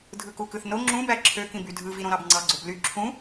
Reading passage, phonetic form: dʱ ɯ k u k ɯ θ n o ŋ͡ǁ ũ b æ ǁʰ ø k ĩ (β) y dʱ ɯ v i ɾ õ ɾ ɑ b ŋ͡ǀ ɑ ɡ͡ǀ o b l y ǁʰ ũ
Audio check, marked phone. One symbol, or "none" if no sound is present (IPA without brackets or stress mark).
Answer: b